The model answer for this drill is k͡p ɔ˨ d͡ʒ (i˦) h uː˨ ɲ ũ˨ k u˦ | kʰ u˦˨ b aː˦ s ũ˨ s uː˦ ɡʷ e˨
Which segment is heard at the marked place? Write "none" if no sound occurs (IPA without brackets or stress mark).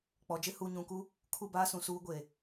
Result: ɪ˦